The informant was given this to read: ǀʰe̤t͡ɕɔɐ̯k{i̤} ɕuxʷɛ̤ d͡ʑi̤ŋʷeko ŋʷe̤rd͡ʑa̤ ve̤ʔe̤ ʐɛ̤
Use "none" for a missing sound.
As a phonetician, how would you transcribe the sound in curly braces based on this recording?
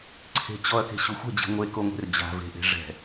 e̤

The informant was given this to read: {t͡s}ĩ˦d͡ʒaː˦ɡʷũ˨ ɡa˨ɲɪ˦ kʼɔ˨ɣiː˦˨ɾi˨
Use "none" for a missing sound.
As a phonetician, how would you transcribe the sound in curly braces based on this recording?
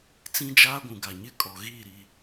t͡s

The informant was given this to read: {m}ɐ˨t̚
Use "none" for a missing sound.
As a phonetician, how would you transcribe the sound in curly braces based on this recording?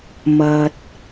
m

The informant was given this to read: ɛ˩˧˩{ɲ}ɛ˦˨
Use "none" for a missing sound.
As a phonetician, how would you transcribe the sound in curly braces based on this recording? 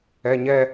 ɲ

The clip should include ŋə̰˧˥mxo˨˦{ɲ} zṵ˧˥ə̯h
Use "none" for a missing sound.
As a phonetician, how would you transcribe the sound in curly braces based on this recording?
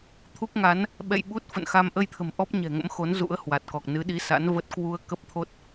n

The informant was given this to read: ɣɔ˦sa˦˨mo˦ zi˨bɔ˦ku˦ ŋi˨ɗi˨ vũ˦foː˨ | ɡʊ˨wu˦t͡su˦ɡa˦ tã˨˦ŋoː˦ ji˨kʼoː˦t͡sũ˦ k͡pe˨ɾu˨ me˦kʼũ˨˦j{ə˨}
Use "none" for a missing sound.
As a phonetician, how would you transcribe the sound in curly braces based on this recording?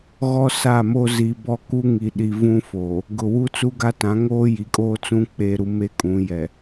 ɛ˨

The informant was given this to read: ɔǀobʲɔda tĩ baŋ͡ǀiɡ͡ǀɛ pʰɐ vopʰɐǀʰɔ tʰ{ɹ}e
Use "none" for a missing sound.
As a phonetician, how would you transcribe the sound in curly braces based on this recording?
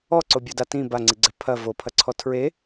ɹ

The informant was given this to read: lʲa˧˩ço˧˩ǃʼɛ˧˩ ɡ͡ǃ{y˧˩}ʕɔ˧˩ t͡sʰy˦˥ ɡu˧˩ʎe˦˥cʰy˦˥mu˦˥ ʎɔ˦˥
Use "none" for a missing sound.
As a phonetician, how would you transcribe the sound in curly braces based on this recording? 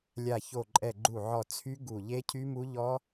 u˧˩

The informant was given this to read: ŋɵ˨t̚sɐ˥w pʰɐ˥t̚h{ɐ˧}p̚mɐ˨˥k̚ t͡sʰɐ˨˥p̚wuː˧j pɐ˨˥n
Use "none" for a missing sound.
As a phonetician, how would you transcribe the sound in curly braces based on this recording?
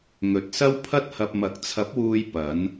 ɐ˧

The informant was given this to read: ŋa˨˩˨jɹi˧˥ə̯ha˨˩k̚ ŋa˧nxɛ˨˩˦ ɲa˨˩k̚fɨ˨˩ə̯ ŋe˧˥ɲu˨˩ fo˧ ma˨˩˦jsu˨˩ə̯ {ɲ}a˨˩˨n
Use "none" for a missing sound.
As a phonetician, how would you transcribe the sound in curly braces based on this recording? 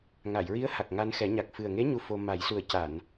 c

